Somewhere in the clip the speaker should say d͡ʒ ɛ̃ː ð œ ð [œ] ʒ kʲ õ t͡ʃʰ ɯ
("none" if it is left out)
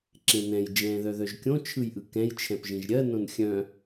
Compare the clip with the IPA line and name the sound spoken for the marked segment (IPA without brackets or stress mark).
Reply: œ